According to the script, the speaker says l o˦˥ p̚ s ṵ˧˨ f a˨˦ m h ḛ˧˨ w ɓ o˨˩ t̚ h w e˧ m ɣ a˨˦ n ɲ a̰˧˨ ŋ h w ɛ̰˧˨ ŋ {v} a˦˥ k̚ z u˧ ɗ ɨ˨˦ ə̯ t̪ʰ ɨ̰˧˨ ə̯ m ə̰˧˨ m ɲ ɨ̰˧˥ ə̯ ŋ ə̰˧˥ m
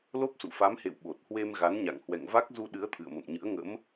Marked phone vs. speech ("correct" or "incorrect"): correct